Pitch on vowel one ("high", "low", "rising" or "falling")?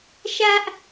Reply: high